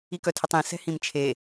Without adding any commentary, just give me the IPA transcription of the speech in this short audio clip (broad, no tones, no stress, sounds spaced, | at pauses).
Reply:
i k œ tʰ ɪ tˤ ĩ s ɛ̤ h ĩ m t͡ʃʰ e